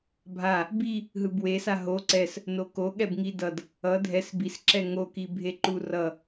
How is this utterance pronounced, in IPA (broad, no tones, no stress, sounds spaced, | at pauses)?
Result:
bʱ a | b i | ɦ ɯ b w e s a ɦ o ǀ ɛ s | n o k o ɠ ɛ b ŋ i d ʌ d | ʌ dʱ ɛ s b i s ǁ ɛ ŋ o k i bʱ e ǃ u r ʌ